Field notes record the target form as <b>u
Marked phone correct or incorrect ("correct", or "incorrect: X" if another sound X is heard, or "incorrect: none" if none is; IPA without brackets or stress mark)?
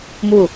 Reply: incorrect: m